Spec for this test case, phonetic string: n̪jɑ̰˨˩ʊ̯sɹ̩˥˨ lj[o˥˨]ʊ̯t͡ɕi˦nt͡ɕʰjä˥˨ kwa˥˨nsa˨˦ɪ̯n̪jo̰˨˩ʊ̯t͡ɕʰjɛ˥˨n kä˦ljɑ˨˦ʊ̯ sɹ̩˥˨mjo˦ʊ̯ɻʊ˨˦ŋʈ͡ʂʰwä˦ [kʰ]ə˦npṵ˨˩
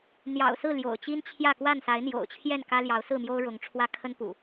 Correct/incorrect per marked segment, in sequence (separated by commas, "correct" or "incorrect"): incorrect, correct